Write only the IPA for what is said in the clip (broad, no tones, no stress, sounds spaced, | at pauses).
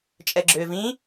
t͡ʃʼ ɛ ɡ͡ǁ ʏː v ĩ